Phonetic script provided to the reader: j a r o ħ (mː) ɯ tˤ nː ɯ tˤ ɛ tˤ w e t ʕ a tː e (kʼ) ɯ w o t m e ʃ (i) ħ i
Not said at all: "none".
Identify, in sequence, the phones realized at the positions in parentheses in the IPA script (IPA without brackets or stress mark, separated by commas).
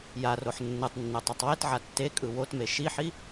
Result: nː, kʼ, i